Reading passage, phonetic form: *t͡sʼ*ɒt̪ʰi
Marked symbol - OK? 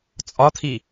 yes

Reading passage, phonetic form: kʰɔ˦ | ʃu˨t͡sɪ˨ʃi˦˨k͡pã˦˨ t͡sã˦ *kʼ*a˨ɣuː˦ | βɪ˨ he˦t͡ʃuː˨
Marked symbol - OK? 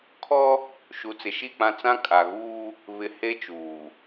yes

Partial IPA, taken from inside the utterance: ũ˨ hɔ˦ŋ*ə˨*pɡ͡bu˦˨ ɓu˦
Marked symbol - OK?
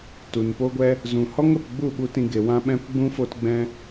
yes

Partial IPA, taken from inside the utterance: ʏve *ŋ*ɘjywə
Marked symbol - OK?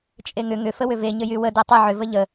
no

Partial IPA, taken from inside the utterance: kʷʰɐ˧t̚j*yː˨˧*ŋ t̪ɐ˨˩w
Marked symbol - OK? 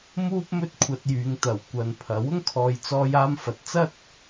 yes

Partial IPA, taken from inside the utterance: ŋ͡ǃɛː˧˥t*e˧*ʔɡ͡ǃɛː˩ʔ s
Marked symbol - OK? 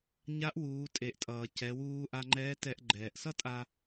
no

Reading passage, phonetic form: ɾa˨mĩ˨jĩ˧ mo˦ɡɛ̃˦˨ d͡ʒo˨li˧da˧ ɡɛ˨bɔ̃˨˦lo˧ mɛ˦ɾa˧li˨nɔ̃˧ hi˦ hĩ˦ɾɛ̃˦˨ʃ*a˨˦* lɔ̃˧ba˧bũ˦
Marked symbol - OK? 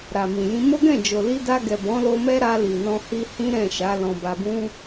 yes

